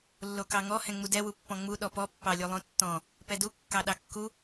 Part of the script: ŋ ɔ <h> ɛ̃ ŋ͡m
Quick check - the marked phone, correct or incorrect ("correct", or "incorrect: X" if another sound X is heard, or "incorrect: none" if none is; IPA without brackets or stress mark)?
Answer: correct